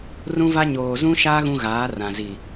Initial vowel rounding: rounded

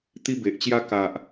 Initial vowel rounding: unrounded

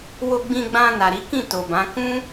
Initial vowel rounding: rounded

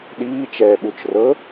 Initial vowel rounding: unrounded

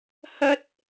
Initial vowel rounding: unrounded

